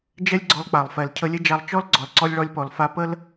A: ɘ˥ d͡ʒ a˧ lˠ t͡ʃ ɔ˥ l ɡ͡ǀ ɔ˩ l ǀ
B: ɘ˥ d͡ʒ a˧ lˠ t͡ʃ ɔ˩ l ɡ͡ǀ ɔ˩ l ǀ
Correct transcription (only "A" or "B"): A